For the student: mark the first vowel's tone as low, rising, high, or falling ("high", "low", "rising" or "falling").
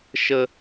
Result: high